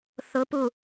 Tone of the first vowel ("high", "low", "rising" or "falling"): rising